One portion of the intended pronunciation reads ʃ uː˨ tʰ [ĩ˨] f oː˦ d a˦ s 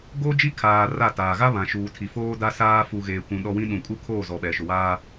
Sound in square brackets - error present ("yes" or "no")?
yes